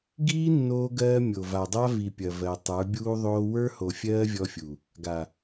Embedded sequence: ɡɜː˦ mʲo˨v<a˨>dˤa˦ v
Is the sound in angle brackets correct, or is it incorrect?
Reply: correct